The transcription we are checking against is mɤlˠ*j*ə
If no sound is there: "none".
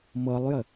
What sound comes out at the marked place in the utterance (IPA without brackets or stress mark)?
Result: j